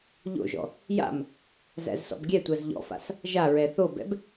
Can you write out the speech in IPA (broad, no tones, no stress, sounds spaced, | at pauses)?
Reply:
ʎ o̰ ʒ ɔ̰ | j a̰ m | z æ̰ z s ɔ̰ b ɡʲ ɛ tʷ a z ʎ ɔ̰ f a̰ s | ʒ a ɹ ɛ θ o b ɛ̰ b